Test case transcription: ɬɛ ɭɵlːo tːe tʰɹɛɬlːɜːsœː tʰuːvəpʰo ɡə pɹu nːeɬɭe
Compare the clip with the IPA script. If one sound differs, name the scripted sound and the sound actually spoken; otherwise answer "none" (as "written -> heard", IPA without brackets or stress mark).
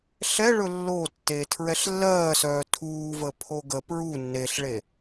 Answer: none